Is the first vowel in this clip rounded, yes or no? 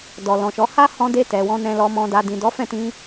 yes